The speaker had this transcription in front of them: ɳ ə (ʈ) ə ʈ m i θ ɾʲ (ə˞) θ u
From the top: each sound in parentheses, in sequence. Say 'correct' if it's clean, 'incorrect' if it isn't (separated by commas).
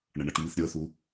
incorrect, correct